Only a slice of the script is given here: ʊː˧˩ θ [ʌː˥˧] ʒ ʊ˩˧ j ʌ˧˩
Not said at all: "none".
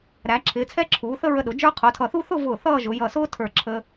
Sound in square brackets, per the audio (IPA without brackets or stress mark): ʌː˥˧